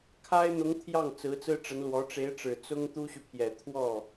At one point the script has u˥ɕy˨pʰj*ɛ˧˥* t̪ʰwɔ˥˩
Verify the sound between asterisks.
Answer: incorrect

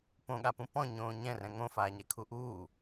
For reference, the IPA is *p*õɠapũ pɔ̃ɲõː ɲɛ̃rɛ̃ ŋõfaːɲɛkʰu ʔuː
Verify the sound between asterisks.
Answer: correct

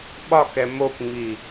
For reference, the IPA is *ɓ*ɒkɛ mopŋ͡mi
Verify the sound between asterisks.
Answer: correct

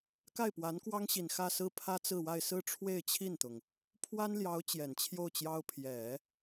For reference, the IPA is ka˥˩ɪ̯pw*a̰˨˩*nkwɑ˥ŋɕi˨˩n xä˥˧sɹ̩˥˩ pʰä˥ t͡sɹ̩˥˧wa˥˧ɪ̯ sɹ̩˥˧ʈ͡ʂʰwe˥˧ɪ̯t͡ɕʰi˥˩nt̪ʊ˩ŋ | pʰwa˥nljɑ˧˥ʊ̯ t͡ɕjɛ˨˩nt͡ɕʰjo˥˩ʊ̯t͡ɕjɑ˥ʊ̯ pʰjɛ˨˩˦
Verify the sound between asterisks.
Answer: incorrect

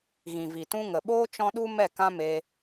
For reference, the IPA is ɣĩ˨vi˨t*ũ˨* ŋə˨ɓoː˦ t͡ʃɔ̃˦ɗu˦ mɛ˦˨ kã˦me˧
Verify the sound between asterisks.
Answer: incorrect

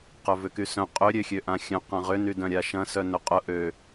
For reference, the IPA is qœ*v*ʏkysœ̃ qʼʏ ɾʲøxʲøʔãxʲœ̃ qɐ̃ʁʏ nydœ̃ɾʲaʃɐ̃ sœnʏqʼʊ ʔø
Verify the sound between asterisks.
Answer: correct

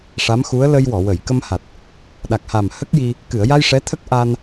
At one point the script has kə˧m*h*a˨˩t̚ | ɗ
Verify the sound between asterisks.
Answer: correct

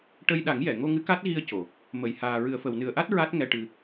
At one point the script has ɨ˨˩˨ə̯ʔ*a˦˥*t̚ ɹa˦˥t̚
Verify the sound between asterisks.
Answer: correct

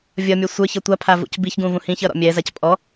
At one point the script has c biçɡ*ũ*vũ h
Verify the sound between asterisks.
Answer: correct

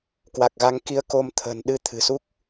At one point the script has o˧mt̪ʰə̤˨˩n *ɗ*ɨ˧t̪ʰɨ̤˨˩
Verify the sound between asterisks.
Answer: correct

